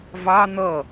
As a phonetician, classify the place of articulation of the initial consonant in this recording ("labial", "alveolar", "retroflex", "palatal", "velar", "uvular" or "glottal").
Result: labial